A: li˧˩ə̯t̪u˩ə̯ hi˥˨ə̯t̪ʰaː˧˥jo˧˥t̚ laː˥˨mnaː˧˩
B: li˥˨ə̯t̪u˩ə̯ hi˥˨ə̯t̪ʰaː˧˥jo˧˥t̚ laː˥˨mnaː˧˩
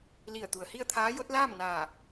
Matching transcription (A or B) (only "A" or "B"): A